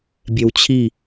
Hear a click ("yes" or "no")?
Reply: no